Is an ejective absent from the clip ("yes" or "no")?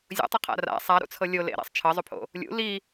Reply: yes